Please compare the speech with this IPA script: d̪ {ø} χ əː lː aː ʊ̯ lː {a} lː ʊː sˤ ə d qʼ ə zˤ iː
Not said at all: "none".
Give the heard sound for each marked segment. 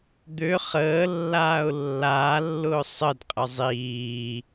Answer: ø, aː

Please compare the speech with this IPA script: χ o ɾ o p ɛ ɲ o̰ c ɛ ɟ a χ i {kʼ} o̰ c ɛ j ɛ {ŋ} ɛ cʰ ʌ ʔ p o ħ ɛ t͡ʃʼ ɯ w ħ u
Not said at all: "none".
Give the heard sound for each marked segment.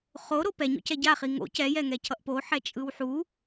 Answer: ŋ, ŋ

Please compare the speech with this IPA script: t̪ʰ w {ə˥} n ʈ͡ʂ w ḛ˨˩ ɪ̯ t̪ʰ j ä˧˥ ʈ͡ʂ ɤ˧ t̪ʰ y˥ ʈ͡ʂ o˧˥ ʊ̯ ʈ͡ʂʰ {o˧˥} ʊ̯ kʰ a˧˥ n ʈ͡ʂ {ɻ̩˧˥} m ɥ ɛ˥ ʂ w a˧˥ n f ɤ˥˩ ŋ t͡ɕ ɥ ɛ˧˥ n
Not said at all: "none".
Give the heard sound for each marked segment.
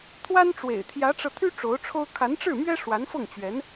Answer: a˥, o˥, ɻ̩˥˩

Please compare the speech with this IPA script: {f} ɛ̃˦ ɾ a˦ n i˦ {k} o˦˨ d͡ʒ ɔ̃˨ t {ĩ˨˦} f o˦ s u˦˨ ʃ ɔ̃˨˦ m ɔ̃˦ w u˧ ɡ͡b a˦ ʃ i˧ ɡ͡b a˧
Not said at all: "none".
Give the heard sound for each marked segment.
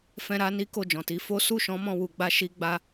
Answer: f, k, i˨˦

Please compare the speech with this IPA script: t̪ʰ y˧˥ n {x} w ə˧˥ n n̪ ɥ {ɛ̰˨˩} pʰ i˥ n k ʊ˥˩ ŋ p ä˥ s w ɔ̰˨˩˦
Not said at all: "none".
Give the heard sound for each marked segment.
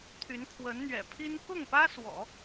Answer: kʰ, ɛ̰˨˩

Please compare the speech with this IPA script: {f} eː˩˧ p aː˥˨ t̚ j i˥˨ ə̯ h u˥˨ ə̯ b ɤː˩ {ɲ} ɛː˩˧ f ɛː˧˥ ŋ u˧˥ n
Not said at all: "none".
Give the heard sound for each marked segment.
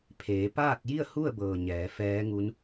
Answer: pʰ, ɲ

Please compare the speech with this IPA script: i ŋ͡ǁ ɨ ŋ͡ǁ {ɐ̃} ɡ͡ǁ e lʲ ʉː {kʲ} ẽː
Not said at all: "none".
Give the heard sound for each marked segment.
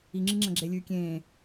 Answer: ɐ̃, kʲ

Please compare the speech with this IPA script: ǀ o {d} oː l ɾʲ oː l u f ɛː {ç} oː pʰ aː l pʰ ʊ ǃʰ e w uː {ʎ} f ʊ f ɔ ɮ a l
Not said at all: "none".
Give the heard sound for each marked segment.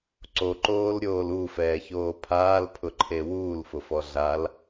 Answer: ǃ, ç, l

